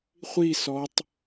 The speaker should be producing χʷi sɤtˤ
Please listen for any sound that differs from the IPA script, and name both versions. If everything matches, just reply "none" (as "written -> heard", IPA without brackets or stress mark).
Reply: ɤ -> ɔ